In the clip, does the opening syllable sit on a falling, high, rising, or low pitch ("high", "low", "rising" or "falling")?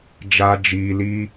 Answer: high